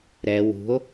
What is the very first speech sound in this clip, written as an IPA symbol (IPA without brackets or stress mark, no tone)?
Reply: ɾ